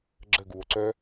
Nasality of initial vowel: oral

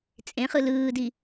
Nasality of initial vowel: nasal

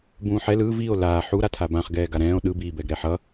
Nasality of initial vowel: nasal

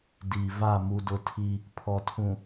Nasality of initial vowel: oral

